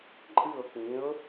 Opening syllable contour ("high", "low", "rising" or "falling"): falling